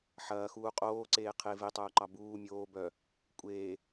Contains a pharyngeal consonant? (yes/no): yes